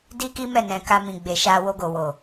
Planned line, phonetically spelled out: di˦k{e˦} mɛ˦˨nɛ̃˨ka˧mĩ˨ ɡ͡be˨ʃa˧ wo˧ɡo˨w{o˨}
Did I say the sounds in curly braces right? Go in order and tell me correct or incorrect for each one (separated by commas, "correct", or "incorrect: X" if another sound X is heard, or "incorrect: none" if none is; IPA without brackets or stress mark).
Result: incorrect: i˦, correct